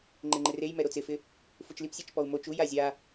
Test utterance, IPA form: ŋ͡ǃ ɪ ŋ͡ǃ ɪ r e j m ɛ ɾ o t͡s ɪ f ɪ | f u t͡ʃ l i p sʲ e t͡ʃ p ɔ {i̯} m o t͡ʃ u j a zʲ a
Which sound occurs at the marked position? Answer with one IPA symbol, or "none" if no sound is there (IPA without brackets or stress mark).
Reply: u̯